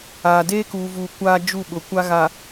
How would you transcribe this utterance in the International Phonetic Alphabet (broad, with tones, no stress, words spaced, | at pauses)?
aː˨ deː˦kuː˨vuː˨ kʷaː˦d͡ʒu˦˨ɓʊ˨ kʷa˦ɣa˨